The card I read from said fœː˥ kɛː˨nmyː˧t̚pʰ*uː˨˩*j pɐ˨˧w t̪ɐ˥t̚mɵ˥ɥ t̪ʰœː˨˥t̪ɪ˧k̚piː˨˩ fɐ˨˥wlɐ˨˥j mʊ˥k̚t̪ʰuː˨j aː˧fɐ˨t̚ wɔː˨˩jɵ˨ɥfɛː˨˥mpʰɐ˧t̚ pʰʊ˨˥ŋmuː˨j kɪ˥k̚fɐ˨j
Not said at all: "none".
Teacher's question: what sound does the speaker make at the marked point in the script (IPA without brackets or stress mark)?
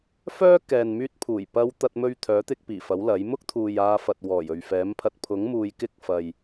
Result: uː˨˩